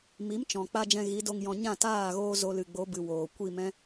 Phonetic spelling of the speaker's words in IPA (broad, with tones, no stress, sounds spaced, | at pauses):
m i˨˦ m t͡ʃ ɔ̃˨ k͡p a˧ d͡ʒ ɛ̃˧ ɣ i˨˦ d o˧ ŋ j ɔ̃˧ ɲ ã˦˨ t aː˦˨ ɣ oː˦ z o˧ l ɨ˨ ɡ͡b o˨˦ b ɨ˧ w oː˨ kʷ i˦˨ m ɛ̃˦